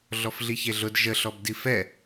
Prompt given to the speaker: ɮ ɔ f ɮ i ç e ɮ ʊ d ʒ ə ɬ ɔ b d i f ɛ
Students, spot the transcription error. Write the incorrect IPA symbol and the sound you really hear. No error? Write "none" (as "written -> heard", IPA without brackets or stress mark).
none